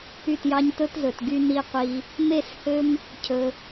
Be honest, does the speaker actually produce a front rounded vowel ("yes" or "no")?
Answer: yes